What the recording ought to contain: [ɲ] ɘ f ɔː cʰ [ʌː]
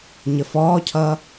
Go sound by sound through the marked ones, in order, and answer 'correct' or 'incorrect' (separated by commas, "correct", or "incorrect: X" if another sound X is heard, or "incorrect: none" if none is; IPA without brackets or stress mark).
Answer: correct, correct